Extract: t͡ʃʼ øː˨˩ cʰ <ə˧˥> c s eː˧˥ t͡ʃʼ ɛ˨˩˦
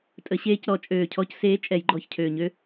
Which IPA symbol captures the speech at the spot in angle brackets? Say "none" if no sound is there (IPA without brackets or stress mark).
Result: ɔ˧˥